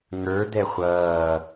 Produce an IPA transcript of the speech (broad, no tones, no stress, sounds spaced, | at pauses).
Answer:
ŋ ə˞ d̪ ɛ χʷ ʌː